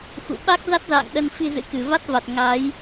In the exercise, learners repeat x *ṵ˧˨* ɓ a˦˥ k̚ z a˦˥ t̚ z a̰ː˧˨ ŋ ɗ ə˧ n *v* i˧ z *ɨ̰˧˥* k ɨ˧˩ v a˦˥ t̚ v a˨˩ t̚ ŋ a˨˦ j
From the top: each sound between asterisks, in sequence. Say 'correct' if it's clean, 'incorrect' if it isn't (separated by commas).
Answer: correct, incorrect, correct